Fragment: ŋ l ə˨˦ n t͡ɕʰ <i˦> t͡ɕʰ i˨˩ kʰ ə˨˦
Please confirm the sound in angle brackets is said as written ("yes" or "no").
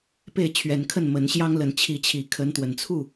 no